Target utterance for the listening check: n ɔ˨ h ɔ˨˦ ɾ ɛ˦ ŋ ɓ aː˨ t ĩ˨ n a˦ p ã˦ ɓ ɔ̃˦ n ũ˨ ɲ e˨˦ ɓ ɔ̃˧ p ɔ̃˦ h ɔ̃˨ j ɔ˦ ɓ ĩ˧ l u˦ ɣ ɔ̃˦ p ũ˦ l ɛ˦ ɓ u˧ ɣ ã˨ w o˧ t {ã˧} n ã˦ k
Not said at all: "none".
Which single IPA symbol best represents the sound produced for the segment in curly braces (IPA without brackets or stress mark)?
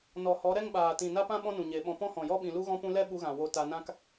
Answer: a˧